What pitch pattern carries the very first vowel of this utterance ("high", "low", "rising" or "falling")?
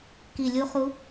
low